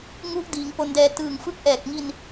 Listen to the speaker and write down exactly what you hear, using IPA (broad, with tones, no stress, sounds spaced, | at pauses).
ŋ u˦˥ ʔ d iː˩˦ ŋ p o˧ n d ɛː˧ t ɯː˨˩ ŋ f ɯ˦˥ k̚ ʔ ɛː˨˩ k̚ ŋ i˧ n